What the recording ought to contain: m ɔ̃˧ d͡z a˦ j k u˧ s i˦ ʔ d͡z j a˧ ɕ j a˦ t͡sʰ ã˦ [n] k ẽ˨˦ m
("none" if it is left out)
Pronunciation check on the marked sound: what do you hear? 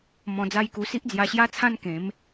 n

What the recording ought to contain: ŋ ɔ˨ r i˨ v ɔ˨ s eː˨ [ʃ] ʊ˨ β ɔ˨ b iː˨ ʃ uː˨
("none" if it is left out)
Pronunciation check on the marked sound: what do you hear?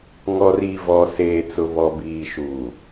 t͡s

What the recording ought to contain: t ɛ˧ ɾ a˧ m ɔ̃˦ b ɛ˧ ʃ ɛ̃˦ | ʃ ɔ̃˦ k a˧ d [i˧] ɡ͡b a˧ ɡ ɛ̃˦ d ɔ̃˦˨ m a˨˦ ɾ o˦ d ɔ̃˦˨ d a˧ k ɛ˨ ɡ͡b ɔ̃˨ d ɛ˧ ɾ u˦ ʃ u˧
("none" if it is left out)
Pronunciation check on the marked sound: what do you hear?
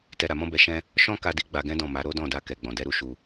i˧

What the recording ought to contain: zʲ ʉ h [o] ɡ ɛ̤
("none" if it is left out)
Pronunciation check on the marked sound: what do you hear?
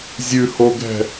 o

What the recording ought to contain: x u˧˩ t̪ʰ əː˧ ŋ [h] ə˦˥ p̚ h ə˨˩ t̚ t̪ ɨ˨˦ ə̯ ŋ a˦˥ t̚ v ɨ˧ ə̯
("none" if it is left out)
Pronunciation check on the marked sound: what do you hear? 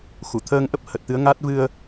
ʔ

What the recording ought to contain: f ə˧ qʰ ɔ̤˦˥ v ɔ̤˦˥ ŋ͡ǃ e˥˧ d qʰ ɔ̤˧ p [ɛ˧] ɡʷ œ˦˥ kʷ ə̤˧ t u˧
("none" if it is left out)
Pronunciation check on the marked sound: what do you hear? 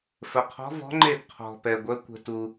ɛ˧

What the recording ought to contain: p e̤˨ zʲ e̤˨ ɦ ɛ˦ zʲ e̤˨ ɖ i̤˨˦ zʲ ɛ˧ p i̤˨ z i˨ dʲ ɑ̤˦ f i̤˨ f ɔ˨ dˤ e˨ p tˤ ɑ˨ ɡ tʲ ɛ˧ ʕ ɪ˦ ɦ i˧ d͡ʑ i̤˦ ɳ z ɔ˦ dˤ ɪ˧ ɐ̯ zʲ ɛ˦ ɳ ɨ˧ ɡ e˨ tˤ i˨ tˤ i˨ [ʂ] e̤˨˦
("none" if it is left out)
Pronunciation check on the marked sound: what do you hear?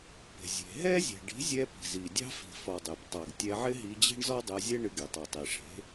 ʂ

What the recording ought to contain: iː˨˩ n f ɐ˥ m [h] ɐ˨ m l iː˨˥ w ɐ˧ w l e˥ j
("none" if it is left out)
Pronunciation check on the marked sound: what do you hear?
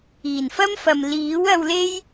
f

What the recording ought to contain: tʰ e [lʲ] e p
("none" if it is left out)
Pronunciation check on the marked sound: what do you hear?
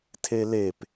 l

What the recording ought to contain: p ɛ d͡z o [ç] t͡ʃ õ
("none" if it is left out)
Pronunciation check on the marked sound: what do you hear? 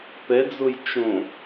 j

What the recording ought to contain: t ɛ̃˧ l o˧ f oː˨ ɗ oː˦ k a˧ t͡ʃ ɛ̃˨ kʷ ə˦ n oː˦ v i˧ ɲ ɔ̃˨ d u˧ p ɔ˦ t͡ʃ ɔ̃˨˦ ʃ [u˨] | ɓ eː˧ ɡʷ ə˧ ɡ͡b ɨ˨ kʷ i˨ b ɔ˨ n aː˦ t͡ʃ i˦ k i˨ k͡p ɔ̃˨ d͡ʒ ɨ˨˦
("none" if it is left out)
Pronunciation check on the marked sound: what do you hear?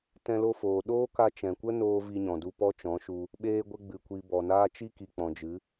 u˧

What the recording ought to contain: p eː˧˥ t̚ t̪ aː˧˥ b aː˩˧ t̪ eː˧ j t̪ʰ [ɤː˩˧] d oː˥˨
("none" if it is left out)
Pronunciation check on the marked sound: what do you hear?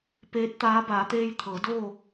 ɤː˩˧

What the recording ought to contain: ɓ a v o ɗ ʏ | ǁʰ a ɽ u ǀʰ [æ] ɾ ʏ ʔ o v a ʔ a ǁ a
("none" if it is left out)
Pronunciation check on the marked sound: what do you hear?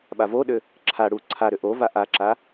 a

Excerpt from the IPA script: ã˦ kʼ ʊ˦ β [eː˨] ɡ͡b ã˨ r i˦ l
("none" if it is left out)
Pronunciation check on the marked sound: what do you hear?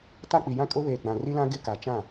eː˨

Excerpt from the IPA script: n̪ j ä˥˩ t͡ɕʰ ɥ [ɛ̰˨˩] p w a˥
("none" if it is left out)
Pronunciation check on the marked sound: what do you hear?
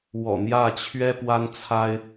ɛ˥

